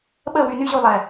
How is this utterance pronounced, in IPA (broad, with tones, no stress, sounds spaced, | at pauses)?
ɓ əː˥˨ w y˧ n y˦˥ ʑ u˧ lˠ ɛ˨˩